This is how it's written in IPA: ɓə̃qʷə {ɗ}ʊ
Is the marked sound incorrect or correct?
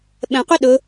correct